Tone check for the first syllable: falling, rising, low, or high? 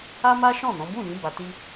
high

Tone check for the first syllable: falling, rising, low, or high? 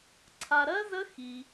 low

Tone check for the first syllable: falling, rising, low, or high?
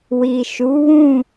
low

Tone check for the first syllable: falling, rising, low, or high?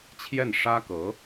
falling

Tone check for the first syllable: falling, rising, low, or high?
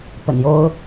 low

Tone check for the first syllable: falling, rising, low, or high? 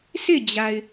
falling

